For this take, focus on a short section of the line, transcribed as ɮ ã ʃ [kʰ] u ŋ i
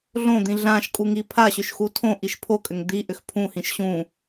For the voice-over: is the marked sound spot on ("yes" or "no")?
no